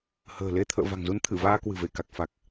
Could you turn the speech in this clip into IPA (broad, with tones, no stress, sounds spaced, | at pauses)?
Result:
h ə̤ː˨˩ l e˧ t̪ʰ ə̰ː˧˨ v a̤˨˩ ŋ z u˨˦ n t̪ʰ ɨ˧˩ v aː˧ k w ɨ̤˨˩ v e˧˩ k a˨˩ k̚ f a˨˩ k̚